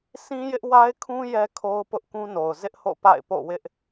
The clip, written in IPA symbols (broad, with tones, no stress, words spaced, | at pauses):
sĩ˦jɪ˦ʔwa˦ɪ̯kʰũ˦ jɛ˦kʰo˦ʊ̯ pʊ˦ʔ kũ˦no˨ʊ̯ zɪ˦ʔho̰˦˨ pa̰˦˨ɪ̯po̰˦˨wɪ˦ʔ